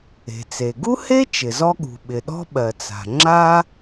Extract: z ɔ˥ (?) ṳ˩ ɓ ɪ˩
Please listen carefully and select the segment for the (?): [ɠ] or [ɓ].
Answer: ɠ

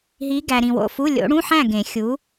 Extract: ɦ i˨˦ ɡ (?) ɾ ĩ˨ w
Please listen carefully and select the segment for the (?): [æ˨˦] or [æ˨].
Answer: æ˨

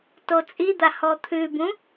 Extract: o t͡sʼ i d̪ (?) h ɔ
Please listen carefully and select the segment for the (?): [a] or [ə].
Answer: a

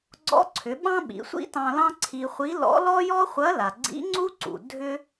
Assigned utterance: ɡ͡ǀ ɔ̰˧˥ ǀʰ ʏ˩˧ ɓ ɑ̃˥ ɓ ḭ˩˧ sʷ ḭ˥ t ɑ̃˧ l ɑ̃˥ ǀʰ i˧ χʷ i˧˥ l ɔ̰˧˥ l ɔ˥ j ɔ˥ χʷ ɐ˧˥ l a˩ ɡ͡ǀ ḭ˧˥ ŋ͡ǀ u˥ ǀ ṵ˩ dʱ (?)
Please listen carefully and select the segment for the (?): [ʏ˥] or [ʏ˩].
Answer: ʏ˥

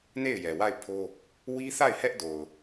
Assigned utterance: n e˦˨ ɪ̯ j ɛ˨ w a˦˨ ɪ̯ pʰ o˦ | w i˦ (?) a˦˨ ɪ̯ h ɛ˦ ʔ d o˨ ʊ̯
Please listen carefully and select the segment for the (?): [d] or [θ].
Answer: θ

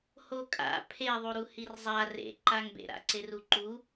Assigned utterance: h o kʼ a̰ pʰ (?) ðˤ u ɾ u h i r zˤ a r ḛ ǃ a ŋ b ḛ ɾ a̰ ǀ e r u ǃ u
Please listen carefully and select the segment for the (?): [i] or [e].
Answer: e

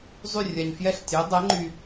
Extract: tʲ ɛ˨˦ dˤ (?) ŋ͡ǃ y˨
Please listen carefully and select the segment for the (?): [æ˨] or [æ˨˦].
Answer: æ˨˦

